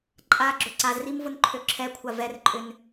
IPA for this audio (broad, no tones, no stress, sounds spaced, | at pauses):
ǃʼ a ɡ͡ǁ ʊ ǀ a z r i m v ʊ n ǃʰ ø ǁʰ ɛ kʷʰ a v ɛ r ǃʼ ʏ n